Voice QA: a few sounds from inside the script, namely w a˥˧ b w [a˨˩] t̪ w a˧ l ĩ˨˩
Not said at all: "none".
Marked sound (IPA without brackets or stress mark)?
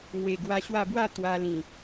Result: a˥˧